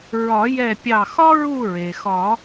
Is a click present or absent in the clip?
absent